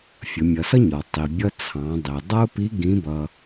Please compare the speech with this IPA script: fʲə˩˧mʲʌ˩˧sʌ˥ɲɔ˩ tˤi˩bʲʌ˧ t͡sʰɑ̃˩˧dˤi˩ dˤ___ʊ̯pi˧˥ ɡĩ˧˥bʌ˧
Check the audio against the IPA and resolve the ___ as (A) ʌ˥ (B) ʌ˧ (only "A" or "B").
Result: A